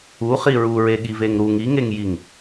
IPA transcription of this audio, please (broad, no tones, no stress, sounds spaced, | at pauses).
u χ i ɹ u ɹ e ɠ i v e ŋ ɾ u ŋ i ŋ e ŋ j i ŋ